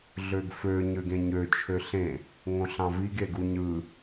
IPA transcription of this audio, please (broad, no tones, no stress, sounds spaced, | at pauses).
ɮ ø ɡ f ø ɲ ø ɡ ẽ ɲ ø t͡ʃʰ ø ɬ ẽ | ŋ õ ɬ ɑ̃ v i ɡ e ɡ u ɲ ɯ